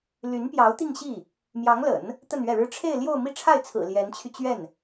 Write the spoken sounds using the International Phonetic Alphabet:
l y˧˥ n p j ɑ˧˥ ʊ̯ t̪ i˥˧ ŋ ɕ i˥˩ | m j ɑ˧˥ ŋ l ə̰˨˩˦ n | t̪ ə˥˧ n ɥ ɛ˥˩ ɻ ɻ̩˥ ʈ͡ʂʰ e˥˧ ɪ̯ l j o˥˧ ʊ̯ m i˥˧ ʈ͡ʂʰ a˥˩ ɪ̯ t͡sʰ ɹ̩˨˩ l j ɛ˧˥ n t͡ɕʰ y˧ t͡ɕ ɥ ɛ˥˩ n

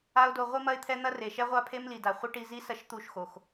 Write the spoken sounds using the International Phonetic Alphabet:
a˦ ʊ̯ d o˧ ʁʷ i˦ m ɐ˦ ɪ̯ t̪ʰ ɛ˦ n̪ ɐ˦ r e˨ ʃ ɛ˦ ʁʷ a˦ pʰ e˦ m l i˨ d a˨ χʷ ɐ˦ ʈ i˧ z i˦ s ɐ˧ ʃ t̪ u˦˨ ʃ x o˨ x

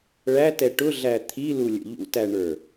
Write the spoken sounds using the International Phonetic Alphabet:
ɭ æ t ɛ ʈ ʊ ɮ æ t̪ʰ i l u lʲ ə̰ ʎ ṵ t æ ɳ ə˞

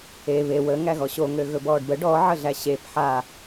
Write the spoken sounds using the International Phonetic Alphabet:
e β e w ə ŋ æ ɣ ɔ ɕ o ŋ ø ɣ ɵ b ɔː ɖ b ə ɖ ɔ ʕ ə ɮ æ ɕ e p ħ a

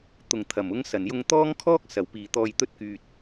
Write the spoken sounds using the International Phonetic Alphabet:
t̪ ʊ˨˩ ŋ t̪ʰ ɐ˨˩ m ʊ˨˧ ŋ s ɐ˨˩ n j ʊ˧ ŋ t̪ ɔː˥ ŋ kʰ ɔː˥ k̚ s ɐ˨˩ w p iː˨˩ t̪ ɔː˨ j t̪ ɵ˧ t̚ k yː˨ t̚

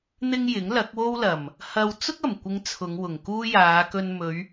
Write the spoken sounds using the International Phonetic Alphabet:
n̪ ɪ˥ ŋ j ɪ˨˥ ŋ l ɐ˨˥ k̚ w o˥ w l ɐ˨˩ m | h ɐ˧ w t͡s ʊ˥ k̚ ɐ˨˩ m kʷ ɪ˨˧ ŋ t͡sʰ ʊ˨˧ ŋ w ʊ˨˩ ŋ k uː˥ j aː˨˧ k ɵ˧ n m ɵ˨˧ ɥ

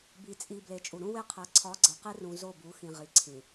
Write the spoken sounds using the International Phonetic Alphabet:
b i˨ t͡sʼ i˨ b l e˨ t͡ʃʼ u˨ ɾ ũ˦ w e˦ qʰ æ˨ ǀʰ ɒ˨˦ ɡ͡ǀ æ˨ q e˦ r ũ˨ z o˦˨ b u˨˦ x ĩ˨ ʁ i˨ ǀʰ ĩ˨

